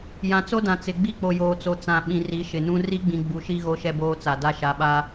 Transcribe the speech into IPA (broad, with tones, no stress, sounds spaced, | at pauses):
j ã˨ t͡s o˦ d ã˨ t͡s ɪ˨ ɡ͡b i˦ k͡p o˨ j oː˨ t͡s o˨ t͡s ã˨ ɓ ĩ˨ r i˨˦ ʃ ɪ˨ n ũ˦ r i˦ ɡ͡b ĩ˨ ɡ͡b u˨ ʃ i˦ ɣ o˦ ʃ ɛ˦ b oː˦ t͡s a˨ d a˦ ʃ a˨˦ ɓ a˦